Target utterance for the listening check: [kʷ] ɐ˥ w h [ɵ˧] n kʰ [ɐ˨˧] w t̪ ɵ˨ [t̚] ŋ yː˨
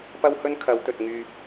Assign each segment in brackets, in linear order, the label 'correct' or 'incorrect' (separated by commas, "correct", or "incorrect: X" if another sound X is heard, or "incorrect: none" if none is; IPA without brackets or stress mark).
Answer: incorrect: p, incorrect: ɵ˥, correct, correct